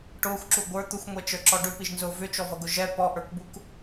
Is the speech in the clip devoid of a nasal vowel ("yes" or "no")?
yes